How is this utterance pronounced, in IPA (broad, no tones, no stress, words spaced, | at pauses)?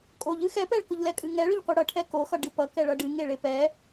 kʼoʎ ɨxɛpɛɭkʊʎ lɛkʼɨŋɛ ɭʊʎqʷɨɽʌʈʰɛ koxʌ ɖɨpʌ kɛɭʌɖɨ ŋeɭepɛ